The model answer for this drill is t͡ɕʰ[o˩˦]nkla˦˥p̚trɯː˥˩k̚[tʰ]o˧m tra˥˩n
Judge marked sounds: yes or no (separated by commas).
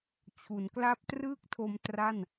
no, yes